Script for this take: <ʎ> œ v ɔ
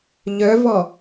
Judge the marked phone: correct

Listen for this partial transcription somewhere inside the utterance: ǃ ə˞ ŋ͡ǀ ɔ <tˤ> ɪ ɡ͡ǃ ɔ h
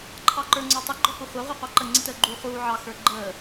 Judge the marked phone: correct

